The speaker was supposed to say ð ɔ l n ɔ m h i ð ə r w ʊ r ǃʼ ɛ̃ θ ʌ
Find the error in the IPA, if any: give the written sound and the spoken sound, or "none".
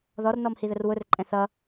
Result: l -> r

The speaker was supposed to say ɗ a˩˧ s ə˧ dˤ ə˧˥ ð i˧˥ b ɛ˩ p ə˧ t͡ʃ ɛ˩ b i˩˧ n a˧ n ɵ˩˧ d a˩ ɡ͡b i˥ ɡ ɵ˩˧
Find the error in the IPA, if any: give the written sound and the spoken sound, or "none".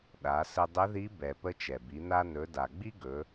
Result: none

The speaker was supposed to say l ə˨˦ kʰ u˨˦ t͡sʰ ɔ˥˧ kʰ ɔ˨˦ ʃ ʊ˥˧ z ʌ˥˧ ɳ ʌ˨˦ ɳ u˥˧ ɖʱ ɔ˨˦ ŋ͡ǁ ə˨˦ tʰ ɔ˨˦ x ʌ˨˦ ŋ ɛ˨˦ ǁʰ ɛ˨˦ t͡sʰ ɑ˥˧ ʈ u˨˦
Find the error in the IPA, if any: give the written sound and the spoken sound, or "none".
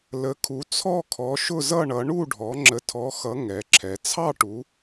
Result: none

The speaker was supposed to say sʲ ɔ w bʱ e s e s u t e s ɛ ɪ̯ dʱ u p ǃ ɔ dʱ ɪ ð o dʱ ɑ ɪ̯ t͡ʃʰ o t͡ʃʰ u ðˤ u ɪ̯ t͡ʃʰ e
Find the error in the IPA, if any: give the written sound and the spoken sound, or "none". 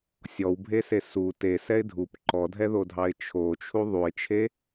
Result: ɪ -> ɛ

